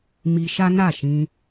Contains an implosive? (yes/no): no